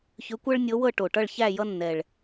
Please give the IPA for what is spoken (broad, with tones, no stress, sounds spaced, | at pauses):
ç ʏ˧˥ kʷ ɤ˥ ɭ nʲ ɤ˧˥ w ɤ˥˧ ʈ o˨˩ ʈ ʌ˥˧ ɭ ç æ˥˧ j ʌ˥ nː ɛ˨˩ ɭ